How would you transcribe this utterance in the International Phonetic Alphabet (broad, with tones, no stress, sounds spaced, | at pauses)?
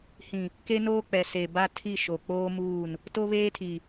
h ĩ˨ | k e˦ n oː˦ k͡p ɛ˨ s e˨ b a˦ tʰ i˦˨ ʃ o˨ k͡p oː˦ m uː˦˨ n | t o˦ β eː˦ tʰ i˨